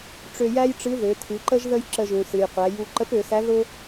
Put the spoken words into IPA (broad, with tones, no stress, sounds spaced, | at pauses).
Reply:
ʈ͡ʂ ø˧ j æ˥ j ʈ͡ʂ ɨ˧˥ ð ø˩˧ tʰ ɨ˩˧ ǃ ə˥ ʒ ð ə˥ j ǁ ə˧ ʒ ũ˩ s ɨ˩ j qʷ æ˩˧ j u˧ ǃ ə˧˥ p ø˩˧ s æ˧˥ ð ʊ˥